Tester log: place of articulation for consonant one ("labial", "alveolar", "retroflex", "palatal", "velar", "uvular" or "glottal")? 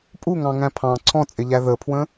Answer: labial